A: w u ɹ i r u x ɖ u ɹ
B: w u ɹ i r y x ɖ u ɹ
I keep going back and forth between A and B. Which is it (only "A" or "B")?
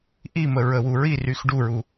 B